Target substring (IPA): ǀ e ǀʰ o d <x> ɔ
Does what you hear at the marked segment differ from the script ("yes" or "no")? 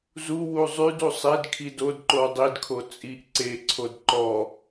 yes